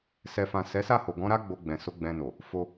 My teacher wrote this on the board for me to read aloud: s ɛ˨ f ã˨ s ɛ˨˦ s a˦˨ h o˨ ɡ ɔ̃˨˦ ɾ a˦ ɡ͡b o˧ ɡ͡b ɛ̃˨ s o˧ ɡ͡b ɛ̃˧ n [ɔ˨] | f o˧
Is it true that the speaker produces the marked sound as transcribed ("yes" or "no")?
no